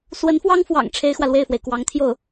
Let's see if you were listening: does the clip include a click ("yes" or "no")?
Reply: no